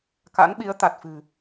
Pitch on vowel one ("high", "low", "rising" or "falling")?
rising